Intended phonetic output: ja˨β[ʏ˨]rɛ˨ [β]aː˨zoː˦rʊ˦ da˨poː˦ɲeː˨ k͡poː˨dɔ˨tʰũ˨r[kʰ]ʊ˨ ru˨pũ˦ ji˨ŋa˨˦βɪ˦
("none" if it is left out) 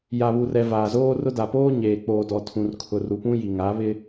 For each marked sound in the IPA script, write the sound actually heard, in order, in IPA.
u˨, v, kʰ

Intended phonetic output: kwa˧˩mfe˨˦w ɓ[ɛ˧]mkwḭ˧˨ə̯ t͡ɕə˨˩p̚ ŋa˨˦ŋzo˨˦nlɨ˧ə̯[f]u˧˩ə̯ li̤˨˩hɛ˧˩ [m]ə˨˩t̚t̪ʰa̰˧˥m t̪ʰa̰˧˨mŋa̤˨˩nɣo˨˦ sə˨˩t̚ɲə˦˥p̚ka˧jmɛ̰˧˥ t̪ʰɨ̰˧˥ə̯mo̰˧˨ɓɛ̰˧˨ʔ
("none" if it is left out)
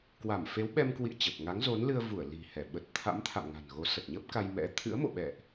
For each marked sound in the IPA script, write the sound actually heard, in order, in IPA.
ɛ˧, v, ɓ

